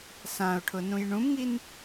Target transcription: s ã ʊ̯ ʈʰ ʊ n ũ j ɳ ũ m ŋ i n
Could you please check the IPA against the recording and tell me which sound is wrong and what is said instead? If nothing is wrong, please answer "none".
none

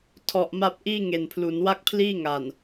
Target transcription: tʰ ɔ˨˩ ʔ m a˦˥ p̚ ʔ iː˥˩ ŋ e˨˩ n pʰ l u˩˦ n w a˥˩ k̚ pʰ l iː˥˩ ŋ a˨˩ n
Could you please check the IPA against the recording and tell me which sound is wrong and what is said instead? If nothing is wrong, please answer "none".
none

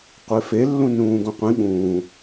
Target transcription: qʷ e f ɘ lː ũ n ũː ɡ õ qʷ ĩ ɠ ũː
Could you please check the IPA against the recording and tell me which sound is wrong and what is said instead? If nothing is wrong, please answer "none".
ɘ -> e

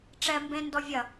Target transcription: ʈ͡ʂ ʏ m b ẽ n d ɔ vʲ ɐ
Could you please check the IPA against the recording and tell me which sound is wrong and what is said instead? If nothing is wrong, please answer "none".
ʏ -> ɛ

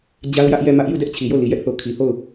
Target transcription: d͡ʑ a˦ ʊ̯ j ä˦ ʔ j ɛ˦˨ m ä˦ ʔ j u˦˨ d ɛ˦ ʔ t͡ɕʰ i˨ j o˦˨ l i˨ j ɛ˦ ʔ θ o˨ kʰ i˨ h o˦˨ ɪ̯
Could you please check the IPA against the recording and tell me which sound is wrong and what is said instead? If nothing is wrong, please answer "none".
ɪ̯ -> ʊ̯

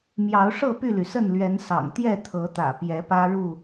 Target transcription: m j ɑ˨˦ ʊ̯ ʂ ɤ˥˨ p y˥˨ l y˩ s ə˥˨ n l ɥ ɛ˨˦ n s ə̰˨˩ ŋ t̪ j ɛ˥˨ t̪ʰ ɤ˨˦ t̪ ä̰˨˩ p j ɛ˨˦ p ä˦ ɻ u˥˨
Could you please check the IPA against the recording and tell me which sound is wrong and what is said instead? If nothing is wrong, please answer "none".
ə̰˨˩ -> ɑ̰˨˩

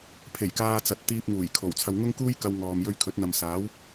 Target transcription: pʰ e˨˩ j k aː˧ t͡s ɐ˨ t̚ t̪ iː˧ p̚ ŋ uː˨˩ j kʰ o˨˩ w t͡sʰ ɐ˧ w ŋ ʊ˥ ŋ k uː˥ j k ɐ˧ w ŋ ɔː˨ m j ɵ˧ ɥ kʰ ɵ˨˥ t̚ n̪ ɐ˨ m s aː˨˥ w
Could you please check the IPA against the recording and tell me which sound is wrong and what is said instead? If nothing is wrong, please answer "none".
none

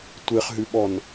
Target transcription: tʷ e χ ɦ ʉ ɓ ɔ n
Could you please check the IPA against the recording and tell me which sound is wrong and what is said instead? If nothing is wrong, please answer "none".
none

